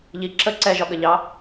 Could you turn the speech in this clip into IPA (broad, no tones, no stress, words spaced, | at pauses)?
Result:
ʎi ǁə ǀɛʒɒɠəʎɑ